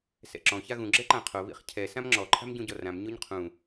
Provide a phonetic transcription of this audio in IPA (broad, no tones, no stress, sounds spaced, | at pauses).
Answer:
s ɛ̰ ǁ ɔ̃ ç a ɣ ũ ɡ͡ǁ ɛ ǃ ã qʰ o β ḭ χ cʰ ɛ s ã m ŋ͡ǁ ɔ ǃʰ a̤ m ɟ ũ ɟ ɔ r ã m ɲ o ɲ qʰ ũ